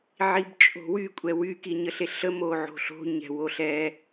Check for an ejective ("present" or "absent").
present